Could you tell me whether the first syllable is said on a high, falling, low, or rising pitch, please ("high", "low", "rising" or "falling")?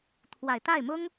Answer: low